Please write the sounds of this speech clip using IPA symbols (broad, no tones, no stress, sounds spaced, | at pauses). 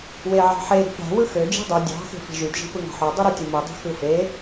w e ʕ ɑ̤ ħ e ɾ i̤ p ɾ æ̤ w ɯ x ø d͡ʒ i̤ dˤ y dʲ ɑ̤ x e̤ f i̤ ʒ y d ʒ i̤ p ɯ ŋ ɑ̤ ħ o dˤ y ɾ y tʲ u m ɯ dˤ e̤ x ɯ f e